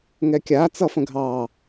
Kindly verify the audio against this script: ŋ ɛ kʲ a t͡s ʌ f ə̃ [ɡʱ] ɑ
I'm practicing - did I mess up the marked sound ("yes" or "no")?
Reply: no